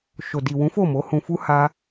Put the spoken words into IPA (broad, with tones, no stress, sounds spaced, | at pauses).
ʃ o˨ d i˨ w ũ˨˦ f o˦˨ m o˨˦ h ũ˧ f u˦ h a˦